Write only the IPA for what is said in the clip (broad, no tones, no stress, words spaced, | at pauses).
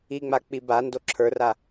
iŋ͡mak͡pi bando ǁʰə˞ra